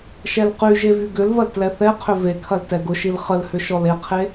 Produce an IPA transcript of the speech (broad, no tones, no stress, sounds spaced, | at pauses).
ʃ ɛ l q y ʒ e v y ɡ ʏ l v ɐ l t l ɛ θ ɛ qʰ ʏ v e kʰ ɐ l t ɛ ɡ ʊ ʃ i l χ ə l h ʏ ʃ ɔ l e qʰ e